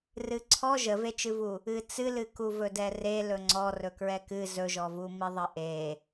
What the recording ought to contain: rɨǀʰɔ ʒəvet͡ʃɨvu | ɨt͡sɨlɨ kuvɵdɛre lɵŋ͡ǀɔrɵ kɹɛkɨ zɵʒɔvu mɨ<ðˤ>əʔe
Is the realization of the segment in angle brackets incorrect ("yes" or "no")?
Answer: no